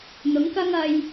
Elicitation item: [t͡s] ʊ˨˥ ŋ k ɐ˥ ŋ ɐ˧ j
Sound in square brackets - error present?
yes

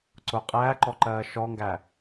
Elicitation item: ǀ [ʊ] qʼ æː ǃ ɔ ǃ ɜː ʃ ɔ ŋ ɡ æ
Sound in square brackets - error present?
no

